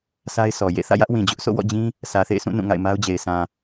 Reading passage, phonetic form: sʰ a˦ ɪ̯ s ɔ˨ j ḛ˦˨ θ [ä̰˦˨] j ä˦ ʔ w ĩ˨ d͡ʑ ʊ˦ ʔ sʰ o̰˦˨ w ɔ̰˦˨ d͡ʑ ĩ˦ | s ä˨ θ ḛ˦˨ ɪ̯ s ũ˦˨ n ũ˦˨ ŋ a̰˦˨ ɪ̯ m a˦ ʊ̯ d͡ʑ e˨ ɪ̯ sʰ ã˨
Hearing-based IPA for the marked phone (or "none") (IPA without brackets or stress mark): ä̰˦˨